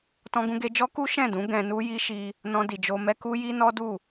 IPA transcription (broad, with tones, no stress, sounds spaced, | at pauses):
t ɔ̃˧ ɡ ũ˧ ɡ e˧ d͡ʒ ɔ˦ k u˦ ʃ ɛ̃˦˨ d ũ˨˦ ɡ ɛ̃˧ n u˦ j i˦ ʃ i˧ | n ɔ̃˧ d i˨ d͡ʒ o˧ m ɛ˦ k u˦ j i˦ n ɔ˦ d u˦˨